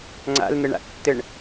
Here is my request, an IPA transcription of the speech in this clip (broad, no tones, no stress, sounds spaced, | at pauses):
ŋ͡ǀ a̰ l n̪ ɘ ɳ a̰ tː ɘ ɳ